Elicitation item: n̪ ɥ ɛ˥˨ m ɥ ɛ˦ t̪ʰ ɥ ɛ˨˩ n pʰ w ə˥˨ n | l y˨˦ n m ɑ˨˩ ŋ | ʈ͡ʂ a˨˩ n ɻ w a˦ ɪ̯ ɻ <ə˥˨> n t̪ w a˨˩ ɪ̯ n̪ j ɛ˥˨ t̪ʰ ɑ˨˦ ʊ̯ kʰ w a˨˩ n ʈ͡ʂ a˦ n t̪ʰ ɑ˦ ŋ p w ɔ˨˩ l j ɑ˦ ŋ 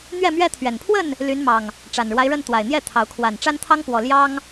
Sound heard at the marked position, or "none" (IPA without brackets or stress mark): ə˥˨